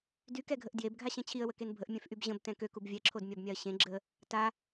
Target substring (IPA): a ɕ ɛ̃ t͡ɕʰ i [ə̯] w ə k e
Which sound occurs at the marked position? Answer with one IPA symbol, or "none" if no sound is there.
ə̯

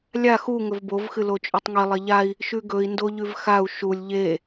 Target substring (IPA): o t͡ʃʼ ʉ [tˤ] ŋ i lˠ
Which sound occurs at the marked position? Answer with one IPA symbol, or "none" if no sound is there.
tˤ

